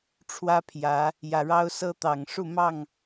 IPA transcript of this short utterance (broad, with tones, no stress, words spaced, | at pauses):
ʈ͡ʂʰwä˦pʰjä˨˦ | jä˨˩ɻɑ˦ʊ̯sɤ˦t̪ɑ˨˩ŋ ʂu˥˨mɑ˥˨ŋ